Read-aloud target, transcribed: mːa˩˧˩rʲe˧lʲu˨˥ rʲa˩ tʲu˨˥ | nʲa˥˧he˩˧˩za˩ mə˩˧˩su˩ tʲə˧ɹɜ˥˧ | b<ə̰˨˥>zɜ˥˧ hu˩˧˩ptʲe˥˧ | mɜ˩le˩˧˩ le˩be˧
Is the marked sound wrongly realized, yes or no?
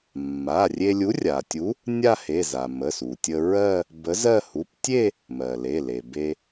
yes